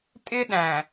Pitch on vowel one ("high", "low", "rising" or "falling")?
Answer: high